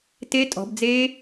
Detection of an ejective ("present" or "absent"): present